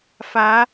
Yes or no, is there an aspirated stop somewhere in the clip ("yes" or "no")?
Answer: no